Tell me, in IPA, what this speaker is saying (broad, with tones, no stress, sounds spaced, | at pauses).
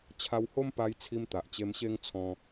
t͡ɕʰ a˧ w h o˦ m p a˧ j t͡sʰ i˧ m t̪ a˨ ʔ t͡ɕ e˧ m ɕ e˦ ŋ t͡sʰ ɔ̃˧